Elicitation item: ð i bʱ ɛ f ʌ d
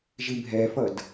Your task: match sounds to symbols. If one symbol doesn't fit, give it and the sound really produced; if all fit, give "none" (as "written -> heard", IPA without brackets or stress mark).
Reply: ð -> ʒ